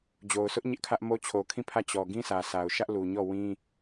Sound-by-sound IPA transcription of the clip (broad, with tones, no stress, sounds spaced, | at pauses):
d͡ʑ o˨ ʊ̯ sʰ ʊ˦ ʔ ɲ ɪ˦ ʔ kʰ ä˦ ʔ m o˦ t͡ɕʰ o˨ kʰ ĩ˦˨ pʰ ä˦˨ t͡ɕ ɔ˨ ɡ ĩ˦ s ä˨ sʰ a˨ ʊ̯ ʃ ä˦ ʔ l u˨ ɲ ɔ˦˨ w ĩ˦